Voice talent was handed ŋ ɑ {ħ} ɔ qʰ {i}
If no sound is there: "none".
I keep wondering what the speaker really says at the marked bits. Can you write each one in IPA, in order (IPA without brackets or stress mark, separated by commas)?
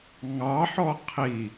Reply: ħ, i